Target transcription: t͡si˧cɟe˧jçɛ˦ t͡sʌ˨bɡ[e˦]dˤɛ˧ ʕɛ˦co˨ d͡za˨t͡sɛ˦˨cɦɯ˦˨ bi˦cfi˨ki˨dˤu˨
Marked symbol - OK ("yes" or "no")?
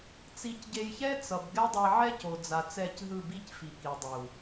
no